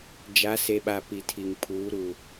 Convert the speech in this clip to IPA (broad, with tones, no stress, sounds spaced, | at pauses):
d͡ʒ a˨˦ s e˨ ɓ a˨ p i˨ tʰ i˨ ŋ pʰ uː˨˦ ɾ u˨